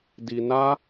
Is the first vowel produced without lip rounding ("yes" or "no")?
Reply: yes